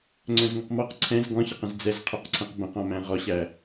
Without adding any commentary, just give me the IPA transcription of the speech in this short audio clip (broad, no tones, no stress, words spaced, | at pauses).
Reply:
ŋ͡ǀœ̃zŋoqmɔq ǀʰɛ̃z ɡɔ̃çəqə̃z d͡zɛzqʰœqǀʰɛ̃q bə̃qɔ̃mæ̃ ʁɔɕæ